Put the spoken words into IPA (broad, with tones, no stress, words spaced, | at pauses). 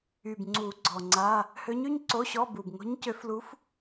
y˨˩bŋ͡ǀu˨˩˦ ɡ͡ǀɔ˨˩ŋ͡ǀa˧˥˧ | hø˧˥ɲy˧˥˧ɲ ǀo˧˥˧ɕɔ˧˥˧bu˨˩b ŋo̤˧˥ɲcø˧˥flu˧˥f